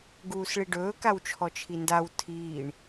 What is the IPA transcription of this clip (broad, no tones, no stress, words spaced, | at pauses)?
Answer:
ɡuːsɭiɖɵː kawt͡ʃʰɔt͡ʃʰindaw tʰiːɳ